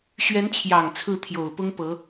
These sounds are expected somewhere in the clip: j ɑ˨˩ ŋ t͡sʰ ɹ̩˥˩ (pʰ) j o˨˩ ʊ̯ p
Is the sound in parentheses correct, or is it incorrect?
incorrect